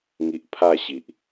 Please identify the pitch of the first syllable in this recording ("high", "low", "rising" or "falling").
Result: low